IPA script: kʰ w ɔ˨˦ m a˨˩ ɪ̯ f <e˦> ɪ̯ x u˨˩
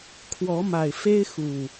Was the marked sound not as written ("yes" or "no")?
no